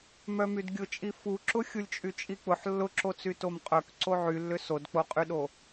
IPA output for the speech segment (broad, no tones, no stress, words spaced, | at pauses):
mœmydɡʲʊt͡ʃʼi fuǁʊ xʲulʲt͡ʃʼyt͡ʃʼik͡pʊħ lːʊǁot͡sy tomqʼœk ǀoʕylːʏ sodk͡poqʼyɗo